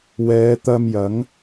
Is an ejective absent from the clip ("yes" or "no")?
yes